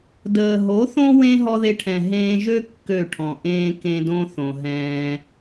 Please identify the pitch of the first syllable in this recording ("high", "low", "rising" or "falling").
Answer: low